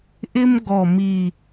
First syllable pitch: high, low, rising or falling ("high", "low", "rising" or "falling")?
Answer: high